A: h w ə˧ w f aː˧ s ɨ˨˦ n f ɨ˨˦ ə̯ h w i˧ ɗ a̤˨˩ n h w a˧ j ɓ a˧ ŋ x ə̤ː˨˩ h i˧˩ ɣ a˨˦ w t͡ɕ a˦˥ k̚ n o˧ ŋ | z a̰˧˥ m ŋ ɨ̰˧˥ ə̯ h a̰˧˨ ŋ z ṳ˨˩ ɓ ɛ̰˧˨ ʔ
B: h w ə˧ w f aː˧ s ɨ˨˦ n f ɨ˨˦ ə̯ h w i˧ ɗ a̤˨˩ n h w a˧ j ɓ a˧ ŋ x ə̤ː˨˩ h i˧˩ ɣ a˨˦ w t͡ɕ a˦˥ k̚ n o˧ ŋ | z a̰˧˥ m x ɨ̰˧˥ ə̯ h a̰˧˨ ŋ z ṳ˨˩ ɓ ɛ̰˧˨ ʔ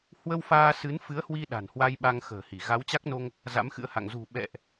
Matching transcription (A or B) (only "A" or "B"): B